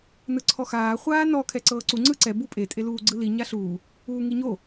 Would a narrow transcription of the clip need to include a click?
yes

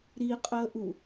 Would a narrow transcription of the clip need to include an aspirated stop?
no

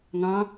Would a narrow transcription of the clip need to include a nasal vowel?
yes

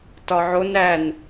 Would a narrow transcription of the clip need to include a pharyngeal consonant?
yes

